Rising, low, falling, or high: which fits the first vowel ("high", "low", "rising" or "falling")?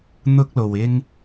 high